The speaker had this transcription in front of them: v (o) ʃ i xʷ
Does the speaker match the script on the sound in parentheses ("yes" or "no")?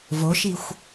yes